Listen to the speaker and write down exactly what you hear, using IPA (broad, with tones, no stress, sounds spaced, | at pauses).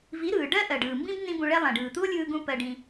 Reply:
v i˨˦ ɾ ɯː˨ ɖ ɜ˦ ʔ ɜ˨ ɖ ɯː˨ m b ĩ˦ b n ĩ˦ b ũ˧ ɭ ɛ˦ lˠ ɛ̃˨ ɖ ɯː˨ t̪ u˦ o̯ lʲ ɯː˧ ɡ ũ˦ p ɜ˧ ɖ ĩ˧